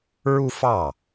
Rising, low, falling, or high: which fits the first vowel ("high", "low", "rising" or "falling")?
high